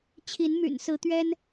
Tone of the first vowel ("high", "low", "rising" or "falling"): rising